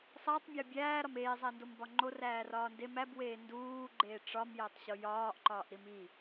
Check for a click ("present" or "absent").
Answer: present